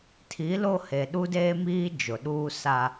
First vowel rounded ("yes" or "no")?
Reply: no